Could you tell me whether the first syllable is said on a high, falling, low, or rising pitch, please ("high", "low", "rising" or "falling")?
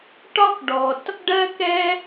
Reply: high